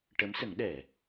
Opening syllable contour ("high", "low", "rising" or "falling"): rising